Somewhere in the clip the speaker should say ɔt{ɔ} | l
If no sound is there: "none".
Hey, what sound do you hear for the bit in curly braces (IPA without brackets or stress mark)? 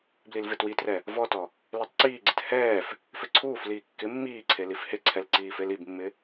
ɔ